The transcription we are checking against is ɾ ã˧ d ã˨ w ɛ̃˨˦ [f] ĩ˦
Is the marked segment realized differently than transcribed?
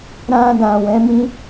yes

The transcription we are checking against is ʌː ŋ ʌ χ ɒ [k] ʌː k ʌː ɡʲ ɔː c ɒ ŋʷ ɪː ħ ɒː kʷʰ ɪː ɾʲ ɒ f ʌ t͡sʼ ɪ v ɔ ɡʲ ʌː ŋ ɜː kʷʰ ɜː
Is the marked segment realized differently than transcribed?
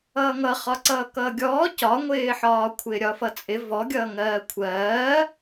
yes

